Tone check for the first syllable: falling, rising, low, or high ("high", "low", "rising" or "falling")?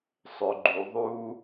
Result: low